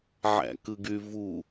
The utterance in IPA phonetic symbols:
ʕ æ̰ k ɯ ɡ y v u

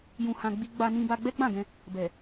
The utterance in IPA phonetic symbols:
j ũ˧ h ã˧ ɡ͡b i˦ ɡ͡b a˧ n ĩ˧ b a˧ ɡ͡b ɛ˦ ɡ͡b ã˦˨ ɡ ɛ̃˧ | b ɛ˨

